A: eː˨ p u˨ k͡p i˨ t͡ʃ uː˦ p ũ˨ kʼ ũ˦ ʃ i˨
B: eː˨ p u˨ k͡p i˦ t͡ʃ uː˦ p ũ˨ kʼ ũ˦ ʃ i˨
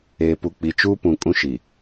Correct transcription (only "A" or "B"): A